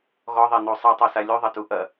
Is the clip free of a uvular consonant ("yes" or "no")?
yes